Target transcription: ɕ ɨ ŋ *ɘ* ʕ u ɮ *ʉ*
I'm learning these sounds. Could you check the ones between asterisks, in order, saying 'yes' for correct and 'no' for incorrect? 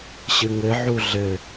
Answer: yes, no

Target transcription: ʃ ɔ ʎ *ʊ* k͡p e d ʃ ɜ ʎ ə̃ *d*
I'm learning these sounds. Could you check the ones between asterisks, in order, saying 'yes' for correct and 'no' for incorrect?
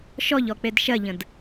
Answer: no, yes

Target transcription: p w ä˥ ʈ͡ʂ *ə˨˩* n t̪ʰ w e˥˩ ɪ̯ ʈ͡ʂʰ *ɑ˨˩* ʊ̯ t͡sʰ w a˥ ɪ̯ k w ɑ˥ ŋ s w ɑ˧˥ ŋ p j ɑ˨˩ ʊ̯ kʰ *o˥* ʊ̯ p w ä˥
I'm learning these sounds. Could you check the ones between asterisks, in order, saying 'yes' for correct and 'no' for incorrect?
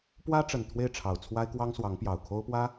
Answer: yes, yes, yes

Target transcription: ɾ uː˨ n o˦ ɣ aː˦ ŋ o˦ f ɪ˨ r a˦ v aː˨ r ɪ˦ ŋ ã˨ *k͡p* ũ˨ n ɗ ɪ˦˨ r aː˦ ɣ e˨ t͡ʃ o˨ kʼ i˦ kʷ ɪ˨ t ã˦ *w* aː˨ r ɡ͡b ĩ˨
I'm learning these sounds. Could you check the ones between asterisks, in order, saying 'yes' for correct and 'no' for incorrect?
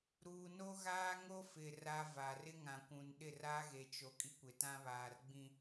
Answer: no, no

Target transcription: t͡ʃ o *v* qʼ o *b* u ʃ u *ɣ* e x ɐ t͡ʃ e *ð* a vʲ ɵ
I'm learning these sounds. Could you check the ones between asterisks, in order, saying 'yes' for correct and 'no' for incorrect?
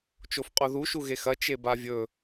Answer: no, no, yes, no

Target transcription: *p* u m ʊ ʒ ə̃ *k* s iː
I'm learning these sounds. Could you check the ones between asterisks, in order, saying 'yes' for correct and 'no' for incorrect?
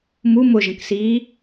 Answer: no, yes

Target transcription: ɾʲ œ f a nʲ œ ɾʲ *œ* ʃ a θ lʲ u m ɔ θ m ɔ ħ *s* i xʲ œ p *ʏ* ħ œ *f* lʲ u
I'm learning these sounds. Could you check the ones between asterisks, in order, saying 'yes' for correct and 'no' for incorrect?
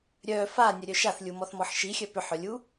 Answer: yes, no, yes, no

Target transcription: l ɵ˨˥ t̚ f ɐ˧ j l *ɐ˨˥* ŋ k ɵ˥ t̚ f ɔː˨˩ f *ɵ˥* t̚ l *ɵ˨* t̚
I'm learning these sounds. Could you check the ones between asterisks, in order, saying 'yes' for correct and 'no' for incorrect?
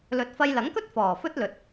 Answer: yes, yes, yes

